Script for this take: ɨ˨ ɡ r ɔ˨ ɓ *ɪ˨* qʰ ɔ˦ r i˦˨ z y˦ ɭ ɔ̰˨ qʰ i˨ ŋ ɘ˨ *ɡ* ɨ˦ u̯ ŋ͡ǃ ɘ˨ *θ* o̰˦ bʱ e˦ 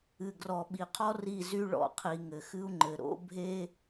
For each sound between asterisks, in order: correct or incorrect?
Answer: incorrect: i˨, incorrect: x, incorrect: ɾ

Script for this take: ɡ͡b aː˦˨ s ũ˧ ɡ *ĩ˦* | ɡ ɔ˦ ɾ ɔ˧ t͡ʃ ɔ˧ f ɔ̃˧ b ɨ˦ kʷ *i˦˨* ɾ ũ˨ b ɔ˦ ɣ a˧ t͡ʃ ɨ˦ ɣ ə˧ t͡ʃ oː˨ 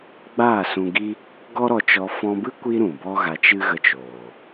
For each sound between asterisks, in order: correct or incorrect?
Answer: incorrect: i˦, incorrect: i˦

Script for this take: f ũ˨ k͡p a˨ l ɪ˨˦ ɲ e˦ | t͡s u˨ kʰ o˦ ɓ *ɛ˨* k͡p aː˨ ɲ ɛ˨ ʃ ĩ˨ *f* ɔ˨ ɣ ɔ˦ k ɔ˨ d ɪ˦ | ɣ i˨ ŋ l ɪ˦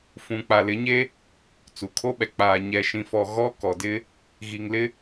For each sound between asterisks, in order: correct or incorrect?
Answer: correct, correct

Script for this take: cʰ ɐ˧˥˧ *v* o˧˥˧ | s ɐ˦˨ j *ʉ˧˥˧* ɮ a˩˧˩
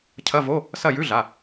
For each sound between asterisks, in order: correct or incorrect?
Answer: correct, correct

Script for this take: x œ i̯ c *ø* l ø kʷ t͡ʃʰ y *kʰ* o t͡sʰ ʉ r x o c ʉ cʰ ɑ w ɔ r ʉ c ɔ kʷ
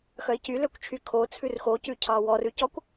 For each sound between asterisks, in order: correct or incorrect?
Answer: incorrect: y, correct

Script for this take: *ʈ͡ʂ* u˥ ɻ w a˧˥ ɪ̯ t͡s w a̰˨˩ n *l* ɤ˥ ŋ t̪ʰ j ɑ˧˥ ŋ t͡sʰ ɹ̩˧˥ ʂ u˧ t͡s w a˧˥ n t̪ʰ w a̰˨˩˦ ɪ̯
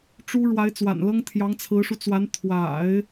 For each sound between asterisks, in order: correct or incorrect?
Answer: correct, correct

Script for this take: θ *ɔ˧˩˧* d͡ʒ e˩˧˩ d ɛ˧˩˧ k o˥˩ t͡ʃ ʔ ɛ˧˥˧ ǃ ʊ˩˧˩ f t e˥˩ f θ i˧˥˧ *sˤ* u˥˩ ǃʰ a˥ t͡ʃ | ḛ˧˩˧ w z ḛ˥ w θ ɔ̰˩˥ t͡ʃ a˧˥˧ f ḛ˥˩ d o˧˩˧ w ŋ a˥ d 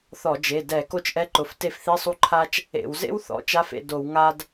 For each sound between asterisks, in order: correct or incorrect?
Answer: correct, correct

